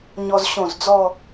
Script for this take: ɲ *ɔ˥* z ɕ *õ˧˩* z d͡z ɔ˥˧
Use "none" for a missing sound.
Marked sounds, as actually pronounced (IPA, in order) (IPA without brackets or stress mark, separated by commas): ɔ˧, õ˧˩